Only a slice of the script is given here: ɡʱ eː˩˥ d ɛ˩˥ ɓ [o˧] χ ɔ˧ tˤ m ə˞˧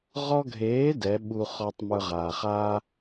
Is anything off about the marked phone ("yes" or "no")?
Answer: yes